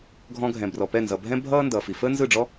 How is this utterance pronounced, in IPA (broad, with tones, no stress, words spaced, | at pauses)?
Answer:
ɡʱɔ̃˧ɡʱɛ̃˩brɔ˩pɛ˥˩ nzʌ˩bʱɛ̃˥bʱʌː˥ ndʌː˩fi˩fəː˥ nzɯ˥˩ɖ͡ʐɔ˥